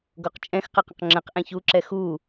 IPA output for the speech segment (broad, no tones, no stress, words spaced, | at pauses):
ɡoqt͡ʃʼɛ̃x qəqə̃qŋ͡ǁə̃q ʔɛ̃çu ǁɛxu